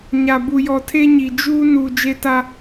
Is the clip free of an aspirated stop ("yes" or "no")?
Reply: no